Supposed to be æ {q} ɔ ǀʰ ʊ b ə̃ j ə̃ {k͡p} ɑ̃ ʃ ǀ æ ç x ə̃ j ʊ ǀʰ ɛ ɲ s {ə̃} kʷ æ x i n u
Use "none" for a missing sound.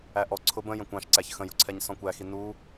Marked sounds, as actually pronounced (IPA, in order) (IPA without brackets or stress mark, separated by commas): ʔ, kʷ, ɔ̃